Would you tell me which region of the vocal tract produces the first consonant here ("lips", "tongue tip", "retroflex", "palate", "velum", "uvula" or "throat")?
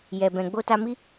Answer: palate